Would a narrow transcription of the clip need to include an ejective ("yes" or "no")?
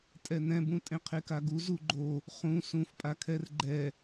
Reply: yes